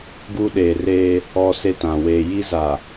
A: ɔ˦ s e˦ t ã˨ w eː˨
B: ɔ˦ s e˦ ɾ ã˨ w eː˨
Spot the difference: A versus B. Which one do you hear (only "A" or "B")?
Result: A